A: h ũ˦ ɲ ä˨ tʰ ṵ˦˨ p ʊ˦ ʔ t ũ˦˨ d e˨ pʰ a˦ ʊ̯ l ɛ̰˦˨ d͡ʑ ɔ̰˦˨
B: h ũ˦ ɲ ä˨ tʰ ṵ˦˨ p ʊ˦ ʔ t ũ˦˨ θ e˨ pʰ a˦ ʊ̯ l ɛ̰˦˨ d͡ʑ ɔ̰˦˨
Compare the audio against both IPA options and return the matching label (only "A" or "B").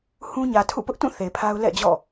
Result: B